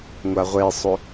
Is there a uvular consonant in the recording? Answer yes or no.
yes